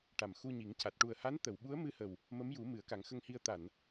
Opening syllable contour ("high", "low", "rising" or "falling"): low